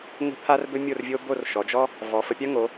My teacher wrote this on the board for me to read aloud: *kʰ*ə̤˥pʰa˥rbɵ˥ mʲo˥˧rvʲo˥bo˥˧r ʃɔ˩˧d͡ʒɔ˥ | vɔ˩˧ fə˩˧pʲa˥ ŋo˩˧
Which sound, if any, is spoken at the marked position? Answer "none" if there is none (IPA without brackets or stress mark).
ŋ